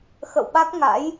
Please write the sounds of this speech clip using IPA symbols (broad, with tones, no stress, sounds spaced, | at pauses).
x ə̰˧˨ w ɓ a˦˥ k̚ ŋ a̰˧˥ j